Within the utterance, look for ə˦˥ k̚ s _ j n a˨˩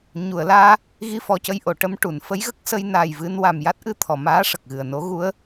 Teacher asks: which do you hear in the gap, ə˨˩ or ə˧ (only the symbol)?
ə˧